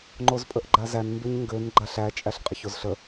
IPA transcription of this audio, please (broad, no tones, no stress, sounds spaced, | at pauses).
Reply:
ŋ͡ǃ o z pʼ ə ʔ ɡ͡ǃ a z æ n m b e ɲ ŋ ɡ ø n ɡ͡ǃ a ɬ æ t͡ʃʼ æ ɬ qʼ ə ç o z ɬ ə